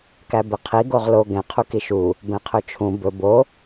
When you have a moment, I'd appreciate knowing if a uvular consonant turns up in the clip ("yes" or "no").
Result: yes